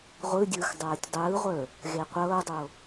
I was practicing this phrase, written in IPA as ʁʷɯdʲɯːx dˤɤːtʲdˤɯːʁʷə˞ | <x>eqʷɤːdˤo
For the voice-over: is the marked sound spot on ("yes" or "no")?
no